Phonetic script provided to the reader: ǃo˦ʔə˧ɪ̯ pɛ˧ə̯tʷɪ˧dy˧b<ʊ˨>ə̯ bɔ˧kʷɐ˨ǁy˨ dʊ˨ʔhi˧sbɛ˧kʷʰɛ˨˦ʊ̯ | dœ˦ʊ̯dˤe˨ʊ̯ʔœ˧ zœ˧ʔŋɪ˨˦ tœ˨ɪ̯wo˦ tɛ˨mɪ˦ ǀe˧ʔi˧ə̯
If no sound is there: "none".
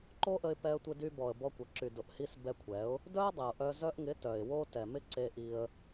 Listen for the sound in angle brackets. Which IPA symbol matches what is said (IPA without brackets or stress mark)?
ɔ˨